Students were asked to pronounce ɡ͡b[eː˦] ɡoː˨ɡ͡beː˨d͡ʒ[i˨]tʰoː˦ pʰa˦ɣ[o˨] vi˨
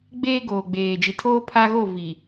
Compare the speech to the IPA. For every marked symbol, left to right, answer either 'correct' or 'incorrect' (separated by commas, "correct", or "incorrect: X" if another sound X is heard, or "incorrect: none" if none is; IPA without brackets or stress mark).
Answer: correct, correct, incorrect: o˦˨